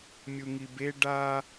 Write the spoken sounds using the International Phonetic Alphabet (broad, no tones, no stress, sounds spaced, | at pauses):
mʲ u ŋ i b e ɖ a